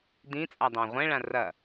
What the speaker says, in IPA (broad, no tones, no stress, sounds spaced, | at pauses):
d ĩ t͡sʼ a dˤ ã ʁʷ ɛ̃ ɭ ã r ɐ